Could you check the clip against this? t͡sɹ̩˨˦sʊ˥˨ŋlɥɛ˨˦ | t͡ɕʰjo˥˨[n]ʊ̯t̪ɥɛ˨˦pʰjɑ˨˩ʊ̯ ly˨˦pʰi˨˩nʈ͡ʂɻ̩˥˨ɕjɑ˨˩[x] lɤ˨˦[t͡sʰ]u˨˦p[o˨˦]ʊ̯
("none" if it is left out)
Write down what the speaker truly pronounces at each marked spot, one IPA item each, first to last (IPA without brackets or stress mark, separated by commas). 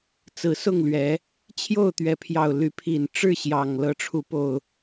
none, ŋ, ʈ͡ʂʰ, o˨˩